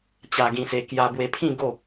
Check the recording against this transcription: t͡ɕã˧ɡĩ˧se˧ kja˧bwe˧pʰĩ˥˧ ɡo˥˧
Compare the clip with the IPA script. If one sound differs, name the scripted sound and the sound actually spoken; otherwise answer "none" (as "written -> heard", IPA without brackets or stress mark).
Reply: ã˧ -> a˧